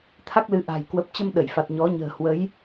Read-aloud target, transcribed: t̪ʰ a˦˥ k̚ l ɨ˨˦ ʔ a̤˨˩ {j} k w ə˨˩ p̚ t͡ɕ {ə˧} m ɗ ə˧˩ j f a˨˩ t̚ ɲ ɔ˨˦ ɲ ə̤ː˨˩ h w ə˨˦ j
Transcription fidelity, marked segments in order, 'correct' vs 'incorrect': correct, correct

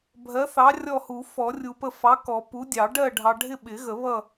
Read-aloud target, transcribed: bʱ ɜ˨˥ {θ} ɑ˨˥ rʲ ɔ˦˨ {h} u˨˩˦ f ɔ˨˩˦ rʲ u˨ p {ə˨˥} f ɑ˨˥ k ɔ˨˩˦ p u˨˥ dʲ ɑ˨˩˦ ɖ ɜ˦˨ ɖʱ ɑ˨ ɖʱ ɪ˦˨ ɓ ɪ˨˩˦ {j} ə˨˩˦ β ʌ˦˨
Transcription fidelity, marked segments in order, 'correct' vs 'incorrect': correct, correct, incorrect: ə˦˨, incorrect: ɣ

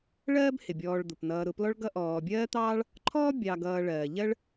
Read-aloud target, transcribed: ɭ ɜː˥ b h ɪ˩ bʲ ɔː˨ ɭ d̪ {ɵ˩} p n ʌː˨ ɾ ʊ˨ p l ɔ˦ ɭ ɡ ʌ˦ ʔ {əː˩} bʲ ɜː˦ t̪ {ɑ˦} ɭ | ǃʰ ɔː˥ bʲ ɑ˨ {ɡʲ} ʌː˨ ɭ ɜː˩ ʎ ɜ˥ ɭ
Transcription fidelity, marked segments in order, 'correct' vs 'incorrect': incorrect: ʊ˩, incorrect: ɔː˩, incorrect: ɑː˦, incorrect: ɡ

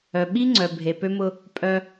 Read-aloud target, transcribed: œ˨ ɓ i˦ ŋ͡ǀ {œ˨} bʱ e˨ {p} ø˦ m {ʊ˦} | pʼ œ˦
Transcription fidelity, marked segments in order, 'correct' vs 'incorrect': correct, correct, correct

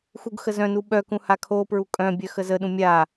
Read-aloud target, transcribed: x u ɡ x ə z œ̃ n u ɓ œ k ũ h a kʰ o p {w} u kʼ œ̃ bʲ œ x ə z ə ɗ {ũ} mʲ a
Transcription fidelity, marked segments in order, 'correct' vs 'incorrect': incorrect: ɹ, correct

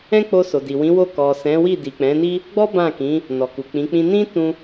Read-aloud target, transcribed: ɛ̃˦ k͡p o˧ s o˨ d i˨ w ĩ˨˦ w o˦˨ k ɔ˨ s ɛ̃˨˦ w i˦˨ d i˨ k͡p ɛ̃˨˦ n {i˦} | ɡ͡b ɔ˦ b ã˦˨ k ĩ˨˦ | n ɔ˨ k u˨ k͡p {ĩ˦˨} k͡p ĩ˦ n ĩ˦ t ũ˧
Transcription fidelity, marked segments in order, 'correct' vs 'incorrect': correct, incorrect: ĩ˨˦

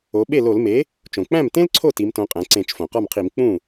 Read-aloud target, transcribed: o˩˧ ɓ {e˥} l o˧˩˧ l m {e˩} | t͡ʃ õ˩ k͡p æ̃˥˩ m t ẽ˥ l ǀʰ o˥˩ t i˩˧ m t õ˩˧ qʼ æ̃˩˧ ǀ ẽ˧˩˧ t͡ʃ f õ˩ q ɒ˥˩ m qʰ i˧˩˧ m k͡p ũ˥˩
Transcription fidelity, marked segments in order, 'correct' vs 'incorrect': incorrect: e˥˩, incorrect: e˩˥

